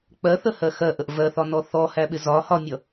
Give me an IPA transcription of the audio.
k͡pɜθəhɜ xɜʔəʔ vɜθɒnɔ θɔhæɓɪ zɒ hɒmʲʌ

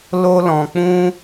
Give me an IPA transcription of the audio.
lo˦lɔ̃˧k͡pũ˦

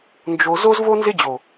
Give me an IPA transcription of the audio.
nd͡ʒo˧ zo˦zvo˦nzɪ˦d͡ʑo˨

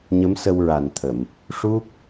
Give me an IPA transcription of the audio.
ɲə˧˥msə˧wɹa˨˩nt̪ʰə˨˩˨m | ʂu˦˥p̚

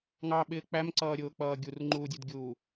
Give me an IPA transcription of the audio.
ŋɑɓɪː k͡pæmǀʌːɾʲʊːk͡pʌː ɡʲurŋ͡ǃuːdʲudɡʲuː

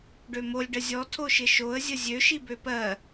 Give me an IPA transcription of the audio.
ɖømolʲ ɖəzʲɔ tʰoʃɪʃoə̯ zʲəzʲø ʃibøpɜ

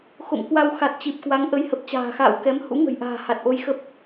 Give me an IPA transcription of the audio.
xo̰˧˨mkwa˧w xa˨˩t̚t͡ɕi˨˩p̚kwa˨˦ŋ ʔə˧jhə˨˩p̚t͡ɕa̤ː˨˩ xa̰ː˧˨wkɛ˨˦m hṵ˧˥ŋə̤˨˩jʔa̤ː˨˩ ha˨˩t̚ʔo˧jxə˦˥p̚

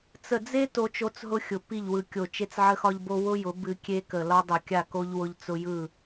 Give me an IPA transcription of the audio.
t͡sə˨d͡ze˦ to˦t͡ʃo˦t͡sɦʊ˦xʲʊ˨ pi˦˨ʎwɯ˨kʲo˨ t͡ʃe˦t͡sʕə˦xɒ˦ʎbo˦ wʊ˦jʊ˨˦ bɨ˦ kʲe˦kə˨ lɒ˦dˤo˨kʲa˦˨ko˦ʎ wʊ˦ʎt͡sʊ˦ jɯ˦˨

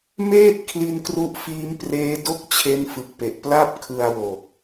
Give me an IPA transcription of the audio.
meː˥˩t̚ kʰli˦˥nkru˦˥ʔfiː˦˥m preː˦˥do˥˩k̚ t͡ɕʰe˦˥nfɯ˨˩k̚pe˨˩ʔ pla˥˩p̚kʰɯ˧a̯wo˨˩k̚

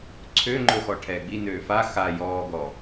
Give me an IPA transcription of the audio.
ǀʰøŋ͡ǃɵ xɔʈʰɛːɡ͡binøː fa xa jɔːɡɔ

